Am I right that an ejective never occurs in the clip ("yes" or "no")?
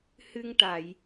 yes